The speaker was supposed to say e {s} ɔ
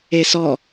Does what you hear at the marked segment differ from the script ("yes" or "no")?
no